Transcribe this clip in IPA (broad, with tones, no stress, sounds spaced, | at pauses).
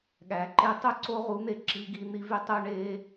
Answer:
ɠ æ˨ ǃ e˦ tˤ u˦ ǀ o˦ ʁ u˨˦ n̪ e˧ ǁ i˧ ɡ i˧ n̪ i˧ v y˧ tˤ u˧ ɳ e˧